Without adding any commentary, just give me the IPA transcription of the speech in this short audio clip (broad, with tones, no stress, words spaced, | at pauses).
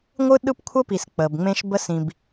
ŋʷɯ˦ɗɯ˦pkʷʰə˦ pi˨s k͡pə˨bŋ͡mẽ˦ʃbə˦ sĩ˨b